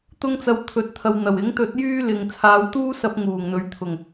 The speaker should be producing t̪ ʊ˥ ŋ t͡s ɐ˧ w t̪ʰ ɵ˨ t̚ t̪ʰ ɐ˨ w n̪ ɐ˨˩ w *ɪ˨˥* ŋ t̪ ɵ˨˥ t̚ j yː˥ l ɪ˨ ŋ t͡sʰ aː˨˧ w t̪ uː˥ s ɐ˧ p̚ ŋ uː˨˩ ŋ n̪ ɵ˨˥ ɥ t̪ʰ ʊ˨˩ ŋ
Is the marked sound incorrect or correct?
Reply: correct